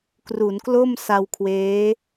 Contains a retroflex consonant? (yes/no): no